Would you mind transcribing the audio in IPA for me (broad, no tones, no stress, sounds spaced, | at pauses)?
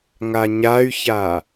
ŋ a ɲ a y̯ ç a